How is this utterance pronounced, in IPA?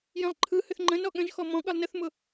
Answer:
jĩlˠǃʰɯhʏθ ŋ͡ǃə̃n ɔɠə̃ʒxɔ mɔ̃ ɠɯlˠnəθmʊ

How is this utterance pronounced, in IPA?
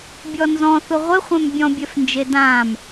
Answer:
bʲɔnzɔ̃ θʊʁʷɪχʷɛ̃m bʲɔ̃bʲɛfnd͡ʒe dãm

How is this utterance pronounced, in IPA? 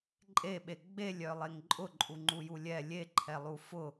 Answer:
ǃʼeɓe ɡ͡belʲœlˠeŋ ǃʼʊǃʼuŋ͡ǃuju lʲɛ lʲeǃʰɛlˠu fʊ

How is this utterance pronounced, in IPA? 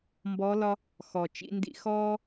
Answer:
mbɔ˧˥lɒ˥ | xɔ˨˩t͡ʃḭ˥ndḭ˥ xɔː˥

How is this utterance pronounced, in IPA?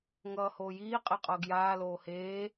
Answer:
ŋʌːhoːjiː qʼeqʼʌːɡjaː loːheː

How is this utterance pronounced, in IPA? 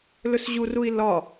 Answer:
lɵsʑurui̯ lɒ

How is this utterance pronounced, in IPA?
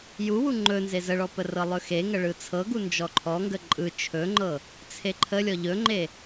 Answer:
juwu ŋ͡ǃɵ nzezəɭɔ pərɤlˠɵxe ŋəɭɯt͡sʰɤɡu nd͡ʒɔǃʰɔŋɡə ǃʼɯ t͡ʃʰɵŋ͡ǃɤ | t͡sʰeǃʰəlʲɔ ʎɵŋ͡ǃe

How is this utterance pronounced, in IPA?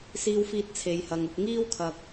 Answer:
siː˥wfiː˥t̚ t͡sʰe˨˧jhɐ˨ŋʊ˧k̚ ŋiː˥wkʰɐ˨k̚

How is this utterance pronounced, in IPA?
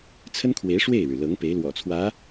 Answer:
t͡sʰə˥nkʰwe˧˥ɪ̯ ʂwe˥˩ɪ̯ɻɻ̩˩lɤ˧˥ŋ pe˧˥ɪ̯lwɔ̰˨˩t͡sʰwä˧˥

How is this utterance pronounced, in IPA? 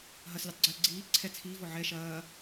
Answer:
ɦɐslʲutˤɡ͡ǀɘː ɡ͡ǀiː ǀʰɛ t͡sʰiːvɔ ʕɛ ʃɐː

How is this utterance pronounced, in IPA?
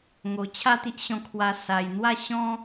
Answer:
ŋo˨˩t͡ɕʰa˥˧t̪i˦ʔ ɕɔ̃˧kʰwa˧ sa˨˩j n̪wa˥˧ ɕɔ̃˦

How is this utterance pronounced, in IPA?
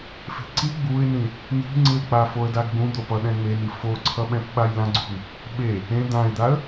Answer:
fe̤ǀi ɡ͡buɪ̯nĩ | ni̤ŋ͡ǀɯlk͡pa foə̯daɡɡ͡bũ d̪opʌ ɗɛ̃ŋ͡meni foǀʰʌɓɛ̃p ɓajlãɡ͡ǀṳn | ɓe | ẽ d̪ãɪ̯d̪aə̯

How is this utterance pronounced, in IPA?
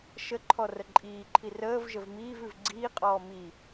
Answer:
ʃəǃʰɔ rəǃʼiːǃʰi rəːv ʒəvmiːvʉv ɡ͡ǀiːqʼɔː mi

